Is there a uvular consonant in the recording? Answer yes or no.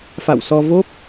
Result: no